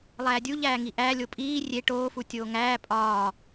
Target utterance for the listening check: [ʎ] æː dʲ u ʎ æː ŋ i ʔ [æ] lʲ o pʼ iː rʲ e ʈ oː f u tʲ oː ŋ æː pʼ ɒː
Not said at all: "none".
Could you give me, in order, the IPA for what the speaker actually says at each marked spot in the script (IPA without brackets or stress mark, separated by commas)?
lˠ, æ